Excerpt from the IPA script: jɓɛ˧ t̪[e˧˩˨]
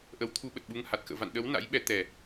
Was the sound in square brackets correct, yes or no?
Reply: no